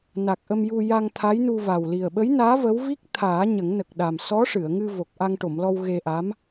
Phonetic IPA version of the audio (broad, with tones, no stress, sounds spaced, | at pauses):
n a˨˩ k̚ ʔ ə˧ m j u˧ j a˧ ŋ t̪ʰ a˧˥ j n u˧ v a˨˩ w l i˨˩ ə̯ ɓ ə˧˥ j n aː˧˥ v ə˧˥ w v i˦˥ k̚ t̪ʰ aː˨˩˦ ɲ ə˨˩˦ ŋ n ə˨˩ k̚ ɗ a˨˩ m s ɔ˧˥ ʂ ɨ˨˩˨ ə̯ ŋ ɨ˧ v o˨˩ k̚ ʔ a˧ ŋ ʈ o˨˩˨ m l ɔ˧ w ɣ e˧ ʔ a˧˥ m